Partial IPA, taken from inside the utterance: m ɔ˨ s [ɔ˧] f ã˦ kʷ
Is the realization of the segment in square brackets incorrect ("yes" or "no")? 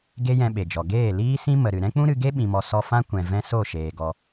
no